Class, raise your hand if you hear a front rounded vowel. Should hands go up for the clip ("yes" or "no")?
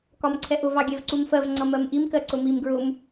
no